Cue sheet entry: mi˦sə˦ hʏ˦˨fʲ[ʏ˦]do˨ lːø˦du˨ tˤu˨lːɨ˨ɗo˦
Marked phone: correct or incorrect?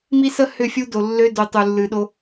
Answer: incorrect